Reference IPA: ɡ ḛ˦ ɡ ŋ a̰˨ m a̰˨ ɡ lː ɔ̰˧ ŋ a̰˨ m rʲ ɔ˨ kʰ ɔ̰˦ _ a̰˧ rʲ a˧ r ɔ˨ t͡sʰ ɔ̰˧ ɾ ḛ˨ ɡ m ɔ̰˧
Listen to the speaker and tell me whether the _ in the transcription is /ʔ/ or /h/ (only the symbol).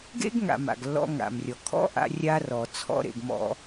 ʔ